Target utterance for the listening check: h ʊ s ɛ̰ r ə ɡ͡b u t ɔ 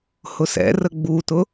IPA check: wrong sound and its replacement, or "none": ɔ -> ʊ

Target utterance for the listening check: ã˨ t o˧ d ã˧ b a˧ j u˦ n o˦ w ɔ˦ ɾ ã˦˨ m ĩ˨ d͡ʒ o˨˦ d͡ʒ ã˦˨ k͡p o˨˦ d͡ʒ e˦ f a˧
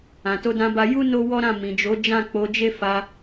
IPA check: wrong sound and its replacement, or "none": none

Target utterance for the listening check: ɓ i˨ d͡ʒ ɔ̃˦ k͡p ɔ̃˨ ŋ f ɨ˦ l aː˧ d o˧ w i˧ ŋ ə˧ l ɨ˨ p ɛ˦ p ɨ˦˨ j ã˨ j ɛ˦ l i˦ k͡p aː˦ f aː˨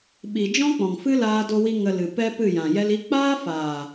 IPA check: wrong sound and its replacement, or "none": none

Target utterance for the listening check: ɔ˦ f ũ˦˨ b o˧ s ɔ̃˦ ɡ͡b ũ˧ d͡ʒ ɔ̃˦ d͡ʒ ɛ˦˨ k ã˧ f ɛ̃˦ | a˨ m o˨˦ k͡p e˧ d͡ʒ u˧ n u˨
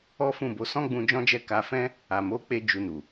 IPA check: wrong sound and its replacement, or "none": ã˧ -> a˧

